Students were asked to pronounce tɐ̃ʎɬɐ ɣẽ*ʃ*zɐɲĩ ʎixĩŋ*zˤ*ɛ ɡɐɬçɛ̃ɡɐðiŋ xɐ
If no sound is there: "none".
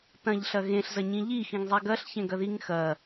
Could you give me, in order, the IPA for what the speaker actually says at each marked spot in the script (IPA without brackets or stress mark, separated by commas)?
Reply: ɬ, zˤ